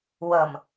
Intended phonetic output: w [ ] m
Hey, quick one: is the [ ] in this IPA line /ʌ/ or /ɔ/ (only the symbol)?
ʌ